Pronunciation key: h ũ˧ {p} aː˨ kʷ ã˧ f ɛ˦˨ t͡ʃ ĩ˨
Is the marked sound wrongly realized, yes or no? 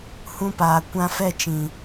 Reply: no